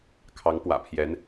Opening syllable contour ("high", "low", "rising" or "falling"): rising